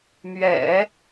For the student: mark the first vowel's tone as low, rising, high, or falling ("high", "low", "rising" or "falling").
low